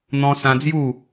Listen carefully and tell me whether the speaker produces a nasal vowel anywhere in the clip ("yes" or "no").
yes